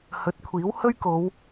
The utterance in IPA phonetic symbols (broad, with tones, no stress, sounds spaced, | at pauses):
h ɵ˨˥ t̚ kʷʰ iː˨˥ w h ɵ˥ ɥ k o˨˧ w